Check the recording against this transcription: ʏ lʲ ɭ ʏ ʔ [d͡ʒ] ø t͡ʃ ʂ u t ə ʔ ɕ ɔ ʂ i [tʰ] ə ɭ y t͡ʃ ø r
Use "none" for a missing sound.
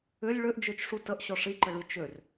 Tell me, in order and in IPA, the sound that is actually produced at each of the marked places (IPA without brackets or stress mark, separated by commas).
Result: d͡ʒ, ǃ